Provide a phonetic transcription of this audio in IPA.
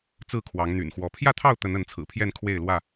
t͡sɹ̩˥˨kʰwɑ˨˦ŋn̪y̰˨˩nxwɔ˨˦ pʰjä˥˨t̪ʰɑ˥˨ʊ̯ t̪ə˨˦nə˨˦nt͡sʰɹ̩˨˩pʰjɛ˥˨n kʰwe˥˨ɪ̯lwä˥˨

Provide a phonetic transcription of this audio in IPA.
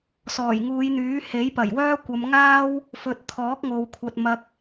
sɔː˨˩jŋuː˨˧jn̪yː˨˥he˨˥j pɐ˨˩jwœː˥kʷɐ˨˧mŋaː˥w | fɵ˨t̚t̪ʰɔː˨˥k̚ ŋo˨wkʷʰɐ˨t̚ mɐ˨k̚

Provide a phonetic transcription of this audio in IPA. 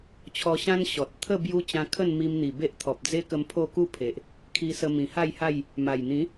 t͡ɕʰɔ˧ɕã˦n ɕɔ˨t̚ t̪ʰə˥˧ bju˧ t͡ɕã˧kʰə˥˧n mi˧mn̪i˨˩be˦ʔ t̪ʰɔ˨p̚d͡ze˦kə˧m pʰo˥˧ku˥˧pʰe˨ʔ | kʰi˧sə˧ mĩ˨˩ha˥˧jha˥˧j | ma˨˩jn̪ĩ˨˦

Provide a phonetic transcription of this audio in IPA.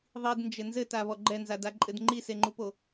ðˤidnd͡ʒɘ nzɘtaβɔ ɡ͡ǃɛnzadaǃʼɘd ŋ͡ǃiseŋ͡ǃupo

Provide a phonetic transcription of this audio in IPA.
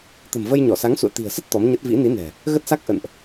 t̪ə̤˨˩mvə˧jɲɔ˧˩ sa˨˦ŋsṵ˧˨ə̯t̪i̤˨˩ə̯sə˦˥t̚ t̪ɔ˨˦mɲə˦˥t̚ vḭ˧˥ni˨˦nɛ̤˨˩ | ɣə˦˥t̚sa˦˥k̚ʔə̰˧˨nʔ

